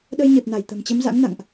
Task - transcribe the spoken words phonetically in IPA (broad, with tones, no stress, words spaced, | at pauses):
ɗə˧jɲe˨˩p̚na˧˩j t̪ə̤˨˩mt͡ɕə˨˦mza̰˧˥ŋna̰˧˨ŋʔ